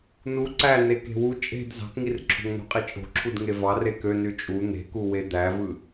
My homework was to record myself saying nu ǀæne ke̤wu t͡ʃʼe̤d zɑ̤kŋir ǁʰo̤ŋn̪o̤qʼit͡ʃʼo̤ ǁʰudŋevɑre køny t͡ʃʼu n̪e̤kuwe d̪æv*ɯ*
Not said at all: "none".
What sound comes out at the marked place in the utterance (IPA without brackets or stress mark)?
ɯ